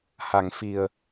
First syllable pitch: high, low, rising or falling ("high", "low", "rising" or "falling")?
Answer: low